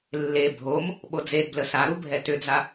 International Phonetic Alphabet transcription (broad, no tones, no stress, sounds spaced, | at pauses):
lː e bʱ o m | ɓ o d͡z e d b l ə s a ɾ u bʱ ɛ t ʏ d͡z a